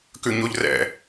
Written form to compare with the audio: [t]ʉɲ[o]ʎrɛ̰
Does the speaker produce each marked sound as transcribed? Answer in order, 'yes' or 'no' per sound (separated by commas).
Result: no, yes